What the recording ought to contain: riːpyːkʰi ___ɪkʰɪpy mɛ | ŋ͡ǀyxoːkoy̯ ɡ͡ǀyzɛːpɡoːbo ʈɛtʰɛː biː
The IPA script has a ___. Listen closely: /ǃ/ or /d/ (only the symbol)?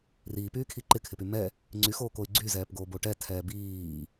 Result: ǃ